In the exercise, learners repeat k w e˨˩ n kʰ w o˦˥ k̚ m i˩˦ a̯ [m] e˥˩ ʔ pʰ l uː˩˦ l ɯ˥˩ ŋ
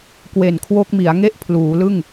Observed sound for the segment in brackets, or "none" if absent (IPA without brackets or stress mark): ŋ